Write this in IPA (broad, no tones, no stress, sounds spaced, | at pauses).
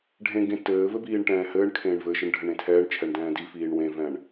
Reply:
ɖʱ ẽ ɡ ẽ t ɘː v ɘ b iː ɳ ʈ ɛ̃ː h ɘː ɳ kʰ ẽː ɳ v ɘ ʃ ɘ ɳ ɖʱ ɘ ɳ ẽ tʰ ɛː ɳ t͡ʃʰ ɛ ɳ d ɛ̃ː d i f iː ɳ w ẽ v ɛ̃ ɳ